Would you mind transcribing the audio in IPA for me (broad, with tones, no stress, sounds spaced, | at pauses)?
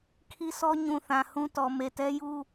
kʰ i˦ s ɔ˦ ɲ ũ˨ θ ã˨ h ũ˦ t ɔ˨ m e˨ t ɛ˦ j u˦